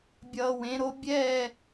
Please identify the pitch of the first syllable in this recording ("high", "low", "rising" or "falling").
low